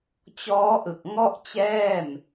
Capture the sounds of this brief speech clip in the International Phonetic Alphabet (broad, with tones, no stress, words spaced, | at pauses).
t͡ɕɔː˦˥ʔɯ˨˩k̚ŋɔ˥˩ʔt͡ɕɛː˥˩m